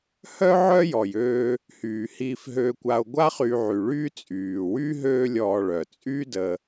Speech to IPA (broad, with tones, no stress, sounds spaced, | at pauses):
h œ˦ ʕ œ˦ j ɔ˩ j øː˨ | h yː˩ h iː˨ f ɦ øː˨ kʷ a˨ o̯ ɡʷ a˦ χ y˨ ʕ y˩ ɭ yː˦ t͡sʼ yː˩ w y˥ ɦ øː˦ lʲ ɔː˨ ɭ œ˩ t͡sʼ yː˥ d ə˨